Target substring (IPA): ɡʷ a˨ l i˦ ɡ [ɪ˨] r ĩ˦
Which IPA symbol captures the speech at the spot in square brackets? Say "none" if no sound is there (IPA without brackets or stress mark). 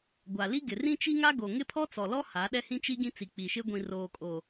ɪ˨